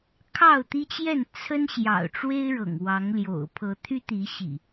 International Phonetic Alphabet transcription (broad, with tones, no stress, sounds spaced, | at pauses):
kʰ ɑ˥˨ ʊ̯ t̪ i˦ t͡ɕ j ɛ˥˨ n t͡sʰ ə˦ n ɕ j ɑ̰˨˩ ʊ̯ ʈ͡ʂ w e˦ ɪ̯ ɻ ɤ̰˨˩ ŋ w ɑ˨˦ ŋ l j o̰˨˩ ʊ̯ pʰ ɤ˨˦ t̪ʰ y˦ t̪ i˨˦ ɕ ḭ˨˩